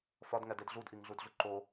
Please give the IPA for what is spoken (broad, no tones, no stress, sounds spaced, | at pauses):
f ɒ d ŋ æ d e d ɮ u d ʔ i ŋ ɮ u d ɮ u ǃ o